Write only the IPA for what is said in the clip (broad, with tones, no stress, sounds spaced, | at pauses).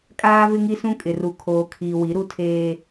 kʼ aː˦ v ɪ˦ ŋ i˦ s ũ˦ kʼ ɪ˨ r u˨ kʰ oː˨ kʰ iː˨ w i˨˦ ɾ u˦ tʰ eː˦